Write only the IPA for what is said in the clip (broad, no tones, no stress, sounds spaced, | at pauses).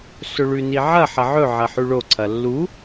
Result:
s ɵ ɭ ʉ n i ʕ ɐ ħ ɐ ʕ ɵ ʕ ɐ ħ ʉ ɭ o ǀʰ ɐ lː u